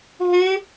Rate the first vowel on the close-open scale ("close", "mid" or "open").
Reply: close